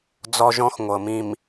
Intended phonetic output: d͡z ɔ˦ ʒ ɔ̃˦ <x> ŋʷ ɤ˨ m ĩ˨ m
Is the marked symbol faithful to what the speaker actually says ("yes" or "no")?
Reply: yes